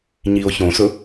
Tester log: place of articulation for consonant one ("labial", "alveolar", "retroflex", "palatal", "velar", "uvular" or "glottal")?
palatal